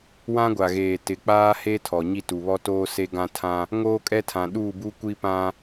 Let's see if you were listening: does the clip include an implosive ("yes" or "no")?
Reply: yes